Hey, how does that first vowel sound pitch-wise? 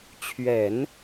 low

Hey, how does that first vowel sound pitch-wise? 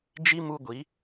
high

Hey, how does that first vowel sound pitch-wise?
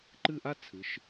falling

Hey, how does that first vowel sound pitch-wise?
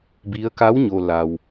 rising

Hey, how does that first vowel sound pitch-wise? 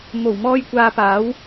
low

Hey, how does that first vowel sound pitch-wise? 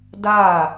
falling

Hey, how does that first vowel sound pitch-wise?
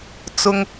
low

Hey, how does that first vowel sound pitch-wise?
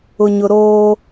low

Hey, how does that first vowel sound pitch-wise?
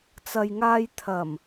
low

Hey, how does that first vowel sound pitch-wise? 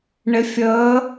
rising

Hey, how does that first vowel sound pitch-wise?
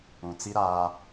low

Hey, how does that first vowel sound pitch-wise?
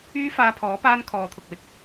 high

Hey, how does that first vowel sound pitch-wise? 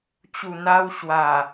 low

